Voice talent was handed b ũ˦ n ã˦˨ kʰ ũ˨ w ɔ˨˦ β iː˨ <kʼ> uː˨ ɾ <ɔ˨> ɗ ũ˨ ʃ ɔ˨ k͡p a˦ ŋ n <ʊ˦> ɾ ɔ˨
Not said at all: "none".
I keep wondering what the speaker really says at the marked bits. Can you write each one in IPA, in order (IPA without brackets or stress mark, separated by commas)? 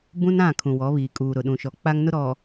kʼ, ʊ˨, ʊ˦